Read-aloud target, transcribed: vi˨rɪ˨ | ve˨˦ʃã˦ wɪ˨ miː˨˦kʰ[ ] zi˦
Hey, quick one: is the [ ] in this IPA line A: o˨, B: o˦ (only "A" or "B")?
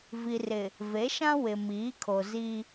A